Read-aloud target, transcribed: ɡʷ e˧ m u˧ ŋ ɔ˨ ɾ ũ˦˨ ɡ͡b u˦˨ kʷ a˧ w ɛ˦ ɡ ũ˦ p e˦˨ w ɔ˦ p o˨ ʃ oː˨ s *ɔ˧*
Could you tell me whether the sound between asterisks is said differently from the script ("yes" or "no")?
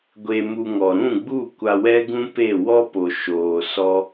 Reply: yes